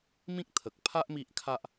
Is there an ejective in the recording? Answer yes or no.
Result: no